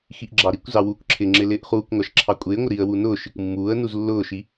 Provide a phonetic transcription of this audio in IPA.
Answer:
x i ʔ ɡ͡ǁ ɑ ɾ i kʷ z ɑ w uː k ǁʰ ɪ ŋ͡ǁ ɪ l ɪː ʔ χ uː kʷ ŋʷ ɑ ʃ ǁʰ ɑ kʷʼ ɪː ŋʷ ɪ ɾ i ə̯ w u n ʊː ʃ i kʷ mː uː ə̯ n u z lː ʊː ʃ i

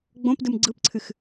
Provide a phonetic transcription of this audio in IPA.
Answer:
ɡ͡b õ p d ɯ m ɡ͡ǀ ɯ p ǀʰ ɨ x

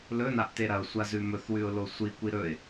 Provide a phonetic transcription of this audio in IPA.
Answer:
l ɵ n a ʔ t e ɾ ɐ ʊ̯ sʷ a z ʉ m ɵ θ w ʉ ʊ̯ l o sʷ i kʷ i ɾ ɵ ɪ̯

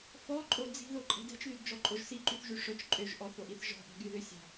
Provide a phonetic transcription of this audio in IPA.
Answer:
f ɔ ǃʼ o d͡z i̤ ð o ǃʼ ɛ̤ d ɛ̤ t͡ʃ ð y d d͡ʒ ɔ ǃʼ o ʒ s i ǃ y θ ʒ y ʂ œ t͡ʃ ǃʼ ø ʒ ʔ ɔ θ o ʔ i θ ʒ ɔ̤ ʔ a̤ ɡ y ð ø sʲ a̤

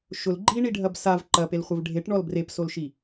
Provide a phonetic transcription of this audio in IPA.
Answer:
ʃ ʊ l ɡ͡ǃ i ɳ i ɖʱ ɐ b s a v ǃ ɐ p e l χʷ ɛ v ɖʱ e ʈ ɳ ɔ l b r e p s o l ʃ i

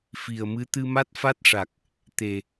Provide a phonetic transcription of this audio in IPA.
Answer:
f i˨˩ ə̯ m ɨ˧˥ t̪ ɨ˧ m a˦˥ t̚ f a˦˥ t̚ ʂ a˨˩ k̚ | t̪ e˨˩

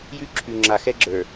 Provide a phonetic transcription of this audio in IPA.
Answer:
j ʉ˦ ǁʰ ʉ˨ ŋ͡ǁ a˨ x ɛ˦ ɡ͡ǁ ə˞˨

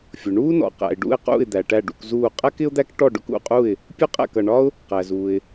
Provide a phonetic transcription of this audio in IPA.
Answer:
fʲ ʊ˩ ɳ uː˥ n ɔ̰˩ q æ̰˩ ɪ̯ ɖ ṵ˥˩ ɪ̯ q ṵ˥˩ ɪ̯ d̪ æ˩ ʈ æ˥˩ ɖ ṵ˥˩ k z uː˥˩ qʼ æ˥ k ɪ˥ ʊ̯ d̪ æ˥ k ʈ ɔ˥˩ ɖ ʊ˥ k ṵ˥˩ qʼ u˥˩ ɪ̯ | pʲ ʊ˥ qʼ æ̰˥˩ k ʌ˩ ɳ ɒ˥ ʊ̯ | q æ˩ z uː˩ ɪ̯

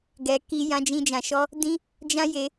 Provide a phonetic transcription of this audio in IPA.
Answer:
ɡ ɛ˧ k i˦ j ã˦ d͡ʒ ĩ˦ d͡ʒ ã˧ ʃ ɔ˦ | d ĩ˦ | d͡ʒ ã˦ j e˧

